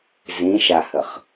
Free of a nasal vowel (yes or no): no